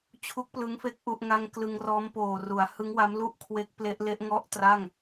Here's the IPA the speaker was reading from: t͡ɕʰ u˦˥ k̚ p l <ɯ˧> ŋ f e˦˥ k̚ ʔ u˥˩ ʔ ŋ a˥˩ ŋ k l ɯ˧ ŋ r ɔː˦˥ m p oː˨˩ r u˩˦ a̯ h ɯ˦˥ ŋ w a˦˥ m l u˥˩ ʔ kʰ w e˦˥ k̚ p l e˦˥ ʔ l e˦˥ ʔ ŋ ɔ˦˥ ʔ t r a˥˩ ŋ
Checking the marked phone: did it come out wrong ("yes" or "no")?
yes